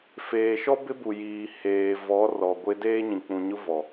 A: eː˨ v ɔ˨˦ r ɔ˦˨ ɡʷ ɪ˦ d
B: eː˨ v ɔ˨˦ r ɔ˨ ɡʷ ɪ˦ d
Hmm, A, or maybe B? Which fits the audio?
B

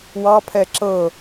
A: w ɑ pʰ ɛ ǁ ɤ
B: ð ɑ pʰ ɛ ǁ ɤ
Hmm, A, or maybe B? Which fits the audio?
A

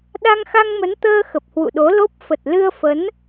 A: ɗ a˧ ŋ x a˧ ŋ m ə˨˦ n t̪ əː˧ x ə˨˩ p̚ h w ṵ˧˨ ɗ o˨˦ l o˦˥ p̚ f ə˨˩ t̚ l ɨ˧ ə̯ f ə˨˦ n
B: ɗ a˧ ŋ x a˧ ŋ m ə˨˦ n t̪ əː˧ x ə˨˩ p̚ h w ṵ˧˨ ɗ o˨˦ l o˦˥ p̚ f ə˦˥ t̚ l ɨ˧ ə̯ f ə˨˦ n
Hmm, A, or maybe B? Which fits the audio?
A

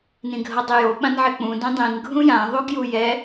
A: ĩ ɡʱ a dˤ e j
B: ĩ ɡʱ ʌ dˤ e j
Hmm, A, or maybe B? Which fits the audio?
B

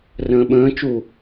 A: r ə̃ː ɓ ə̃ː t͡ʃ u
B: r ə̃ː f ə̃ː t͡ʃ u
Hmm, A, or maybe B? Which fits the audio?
A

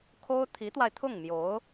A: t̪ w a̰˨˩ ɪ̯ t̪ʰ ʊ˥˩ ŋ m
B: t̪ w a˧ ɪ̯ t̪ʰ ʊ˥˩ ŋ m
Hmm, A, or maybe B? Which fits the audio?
B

